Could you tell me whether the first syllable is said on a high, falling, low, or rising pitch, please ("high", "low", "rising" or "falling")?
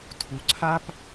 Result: low